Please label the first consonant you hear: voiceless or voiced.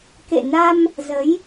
voiceless